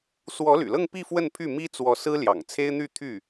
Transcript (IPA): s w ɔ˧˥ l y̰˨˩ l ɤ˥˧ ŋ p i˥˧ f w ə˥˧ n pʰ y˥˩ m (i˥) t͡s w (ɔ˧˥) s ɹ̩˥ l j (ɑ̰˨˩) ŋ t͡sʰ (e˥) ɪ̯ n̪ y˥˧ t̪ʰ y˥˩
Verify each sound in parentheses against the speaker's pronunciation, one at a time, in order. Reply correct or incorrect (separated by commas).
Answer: correct, correct, correct, correct